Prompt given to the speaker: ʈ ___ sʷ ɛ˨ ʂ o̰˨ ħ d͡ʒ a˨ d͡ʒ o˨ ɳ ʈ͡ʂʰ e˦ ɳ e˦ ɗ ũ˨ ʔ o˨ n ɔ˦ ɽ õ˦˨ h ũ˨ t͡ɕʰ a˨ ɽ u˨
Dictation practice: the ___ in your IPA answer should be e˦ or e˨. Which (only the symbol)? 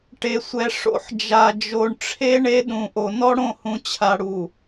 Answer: e˨